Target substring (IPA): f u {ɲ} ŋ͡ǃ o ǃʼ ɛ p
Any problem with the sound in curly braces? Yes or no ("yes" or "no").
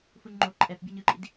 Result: no